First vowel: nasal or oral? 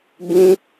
nasal